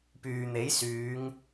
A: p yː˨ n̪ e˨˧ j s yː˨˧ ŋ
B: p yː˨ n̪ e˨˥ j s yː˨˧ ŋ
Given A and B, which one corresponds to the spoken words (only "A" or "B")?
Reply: B